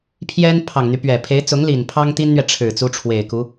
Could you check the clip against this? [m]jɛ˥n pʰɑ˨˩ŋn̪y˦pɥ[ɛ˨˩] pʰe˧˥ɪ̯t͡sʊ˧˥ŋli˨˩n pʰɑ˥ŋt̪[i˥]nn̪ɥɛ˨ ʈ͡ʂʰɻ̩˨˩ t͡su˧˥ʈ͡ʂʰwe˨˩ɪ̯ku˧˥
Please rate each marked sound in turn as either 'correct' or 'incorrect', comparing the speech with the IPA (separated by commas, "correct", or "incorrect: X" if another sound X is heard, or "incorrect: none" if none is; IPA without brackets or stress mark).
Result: incorrect: pʰ, correct, correct